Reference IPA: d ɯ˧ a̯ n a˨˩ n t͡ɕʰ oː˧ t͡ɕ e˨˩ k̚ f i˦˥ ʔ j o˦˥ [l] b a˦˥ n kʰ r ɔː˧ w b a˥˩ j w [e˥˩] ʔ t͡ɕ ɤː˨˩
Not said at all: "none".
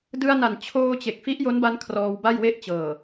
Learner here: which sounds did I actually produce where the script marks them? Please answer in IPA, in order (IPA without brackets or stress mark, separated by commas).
n, e˥˩